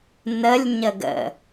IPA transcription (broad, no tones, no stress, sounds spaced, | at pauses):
n ə lʲ ɲ ə ɡ ə̰